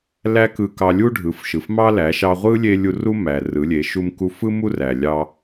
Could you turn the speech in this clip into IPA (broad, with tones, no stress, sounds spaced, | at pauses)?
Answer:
l æ˥ k ɯ˧ k ɑ˧ lʲ u˥ ɖʱ ɯ˩˧ f ʃ ɯ˩ f m ɑ˥ l æ˩˧ ʃ ɑ˧ ʁʷ ɯ˥ lʲ e˥ lʲ u˧ r u˥ m æ˩ r ɯ˩˧ lʲ e˩˧ ʃ u˧ m k u˧ f ɯ˥ m u˥ r æ˩ lʲ ɑ˧